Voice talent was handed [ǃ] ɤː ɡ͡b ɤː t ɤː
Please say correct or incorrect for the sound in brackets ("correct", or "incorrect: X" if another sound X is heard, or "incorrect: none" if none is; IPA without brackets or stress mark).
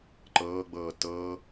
correct